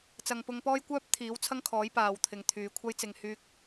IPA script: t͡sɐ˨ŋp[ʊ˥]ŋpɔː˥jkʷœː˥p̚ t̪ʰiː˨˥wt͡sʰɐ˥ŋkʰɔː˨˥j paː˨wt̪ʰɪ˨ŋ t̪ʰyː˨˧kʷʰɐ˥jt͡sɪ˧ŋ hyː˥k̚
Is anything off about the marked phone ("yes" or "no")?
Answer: yes